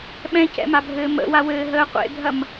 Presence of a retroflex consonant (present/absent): absent